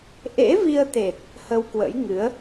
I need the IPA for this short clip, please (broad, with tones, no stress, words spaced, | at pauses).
ʔḛ˧˥vi˧ə̯t̪e˨˩t̚ | hə˧wkwə̰˧˥jŋɨ˨˦ə̯